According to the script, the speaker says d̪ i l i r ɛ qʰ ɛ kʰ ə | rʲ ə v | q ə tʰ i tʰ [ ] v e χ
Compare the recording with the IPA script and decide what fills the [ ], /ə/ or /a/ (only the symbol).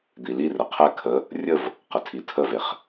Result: ə